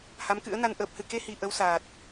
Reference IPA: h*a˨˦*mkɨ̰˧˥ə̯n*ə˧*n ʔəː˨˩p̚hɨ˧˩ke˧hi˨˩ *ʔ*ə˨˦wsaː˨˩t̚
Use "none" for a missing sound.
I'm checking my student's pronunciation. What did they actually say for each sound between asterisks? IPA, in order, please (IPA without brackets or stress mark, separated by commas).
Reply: a˨˦, a˧, ʔ